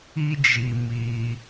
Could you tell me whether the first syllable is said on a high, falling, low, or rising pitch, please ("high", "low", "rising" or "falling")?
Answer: high